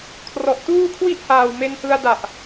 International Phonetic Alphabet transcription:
kʰ r ɔ˨˩ ʔ t uː˥˩ kʰ w i˥˩ ʔ h aː˨˩ w m e˧ n h ɯ˧ a̯ d a˨˩ ʔ

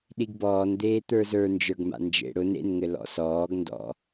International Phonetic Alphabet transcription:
ɗ i ɡ b ɔː n d̪ eː t̪ ə˞ z ə˞ n d͡ʒ ə˞ ɡ m a̰ n d͡ʒ ḛ ɽ ʊ n ḛ n ŋ ɘ l ɔ̰ s ɔː ɡ n d ɔ̰

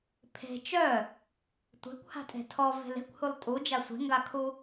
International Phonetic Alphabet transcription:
pʰ e̤ t͡ʃ œ | tʷ e̤ kʷ h a̤ tʼ e̤ tʰ ɔ v e̤ l e̤ kʷ h u lˠ tʼ u d͡ʒ a sʷ e̤ ŋ ɡ a kʰ u

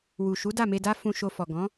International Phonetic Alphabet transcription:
w u˨ ʃ u˨˦ d a˦˨ m e˧ d a˦ f ũ˧ ʃ o˧ f ɔ˨ ɡ ɔ̃˨˦

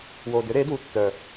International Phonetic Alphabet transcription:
w o˨˩ d ʏ˩˥ ɾ e˩˥ d u˩˥ tː œ˨˩

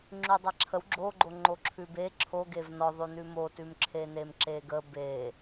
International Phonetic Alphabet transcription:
ŋ͡ǁ ʉ dˤ a ǁʰ ə w ɡ͡ǁ o ɡ͡ǃ o ŋ͡ǃ o ǁʰ ʉ b e ǁʰ o ɡ e v n ɔ ðˤ ʉ n ʉ m o t ʉ m ǁʰ e n e m ǁ e ɡ ə b e

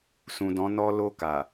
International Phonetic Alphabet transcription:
s ũ˨ d ɔ̃˨˦ n ɔ˧ l o˧ k a˨

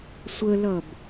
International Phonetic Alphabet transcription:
sʷ ə l ʌ b

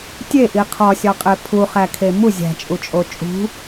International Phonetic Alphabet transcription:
tʲ e ʔ i qʰ ɒ sʲ ɒ qʼ e pʰ u χ æ kʰ e m u zʲ æ̤ t͡ʃʼ u t͡ʃʼ o t͡ʃʼ ṳ

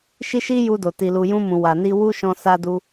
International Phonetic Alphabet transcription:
ʃ i˦ ʃ i˦ j u˧ d o˨ t i˨ l u˨ j ũ˧ m ũ˨ w a˨ n i˧ w u˦ ʃ ɔ̃˧ s a˧ d u˧

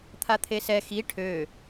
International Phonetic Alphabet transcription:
t̪ʰ a t̪ʰ e s ɛ x i ʈʰ ø

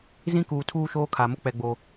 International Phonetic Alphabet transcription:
z ĩ˦ k uː˨ tʰ uː˦ ʃ oː˦ kʰ a˨ m ʊ˦ k͡p ɛ˨ ɡ͡b o˨

